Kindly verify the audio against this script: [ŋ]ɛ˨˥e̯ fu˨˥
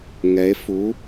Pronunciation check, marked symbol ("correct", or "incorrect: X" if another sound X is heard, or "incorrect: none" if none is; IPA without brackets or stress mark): correct